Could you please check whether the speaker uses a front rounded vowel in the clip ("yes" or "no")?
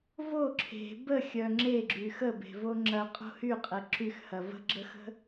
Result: yes